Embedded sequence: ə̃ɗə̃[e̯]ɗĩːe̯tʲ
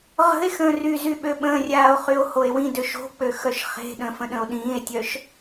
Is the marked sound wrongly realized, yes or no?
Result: yes